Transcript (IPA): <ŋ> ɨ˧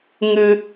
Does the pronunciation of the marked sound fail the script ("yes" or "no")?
no